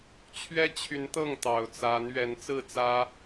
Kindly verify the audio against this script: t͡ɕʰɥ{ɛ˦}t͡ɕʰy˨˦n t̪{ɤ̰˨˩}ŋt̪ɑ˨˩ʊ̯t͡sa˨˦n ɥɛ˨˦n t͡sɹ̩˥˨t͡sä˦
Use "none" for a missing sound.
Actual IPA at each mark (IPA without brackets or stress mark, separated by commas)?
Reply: ɛ˦, ɤ˥˨